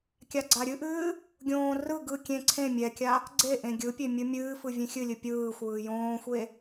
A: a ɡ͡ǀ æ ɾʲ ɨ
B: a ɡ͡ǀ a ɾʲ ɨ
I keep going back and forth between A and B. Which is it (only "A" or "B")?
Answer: B